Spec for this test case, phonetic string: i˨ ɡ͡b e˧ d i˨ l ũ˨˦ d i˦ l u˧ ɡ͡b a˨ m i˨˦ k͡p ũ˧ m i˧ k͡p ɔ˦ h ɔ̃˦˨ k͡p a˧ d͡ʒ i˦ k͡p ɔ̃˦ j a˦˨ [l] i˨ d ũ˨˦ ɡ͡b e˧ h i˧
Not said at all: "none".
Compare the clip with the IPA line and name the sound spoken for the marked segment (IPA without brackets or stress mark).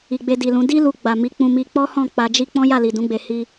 l